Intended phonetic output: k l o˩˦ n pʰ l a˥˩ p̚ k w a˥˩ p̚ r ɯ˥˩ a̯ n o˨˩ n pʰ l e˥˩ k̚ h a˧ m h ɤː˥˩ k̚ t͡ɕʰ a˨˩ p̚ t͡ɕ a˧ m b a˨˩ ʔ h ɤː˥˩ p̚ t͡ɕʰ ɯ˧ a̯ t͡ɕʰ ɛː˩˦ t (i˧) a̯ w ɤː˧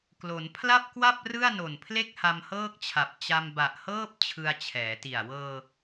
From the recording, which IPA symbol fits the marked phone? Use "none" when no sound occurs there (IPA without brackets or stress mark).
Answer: i˨˩